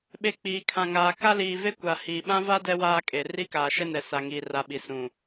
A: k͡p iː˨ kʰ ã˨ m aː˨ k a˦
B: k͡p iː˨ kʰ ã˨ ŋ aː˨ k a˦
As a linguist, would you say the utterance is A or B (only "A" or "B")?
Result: B